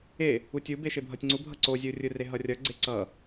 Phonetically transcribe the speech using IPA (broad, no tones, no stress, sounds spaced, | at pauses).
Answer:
e | u tʲ u b e ʃ e bʱ ʌ tʲ ŋ͡ǀ u bʱ ʌ ǀ o zʲ ɯ u̯ rʲ ɯ r e ɦ ʌ rʲ ʌ ɡ͡ǀ e ǀ ʌ